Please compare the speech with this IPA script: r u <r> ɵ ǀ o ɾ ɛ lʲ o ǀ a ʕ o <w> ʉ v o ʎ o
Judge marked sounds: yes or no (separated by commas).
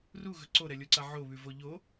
no, no